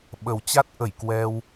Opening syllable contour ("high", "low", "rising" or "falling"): low